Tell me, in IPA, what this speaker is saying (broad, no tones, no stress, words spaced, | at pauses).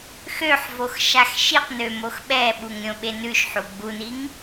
xøħvox ʃaxʃiqnø moxɓɛɓuŋ ɾʲõɓenʉʃħu ɡ͡buniŋ